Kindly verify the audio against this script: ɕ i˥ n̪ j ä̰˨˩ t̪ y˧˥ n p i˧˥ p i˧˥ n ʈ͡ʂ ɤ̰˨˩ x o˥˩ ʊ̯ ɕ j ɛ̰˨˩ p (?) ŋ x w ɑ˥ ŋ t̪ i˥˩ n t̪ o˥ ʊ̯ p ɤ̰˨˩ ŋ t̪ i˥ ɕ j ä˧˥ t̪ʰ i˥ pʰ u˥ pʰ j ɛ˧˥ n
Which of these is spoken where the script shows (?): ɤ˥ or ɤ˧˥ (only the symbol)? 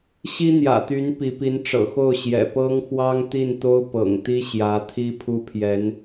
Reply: ɤ˥